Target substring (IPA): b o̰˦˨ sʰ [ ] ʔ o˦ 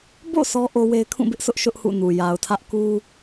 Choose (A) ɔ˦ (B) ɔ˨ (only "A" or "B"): A